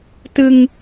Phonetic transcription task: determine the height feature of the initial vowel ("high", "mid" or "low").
high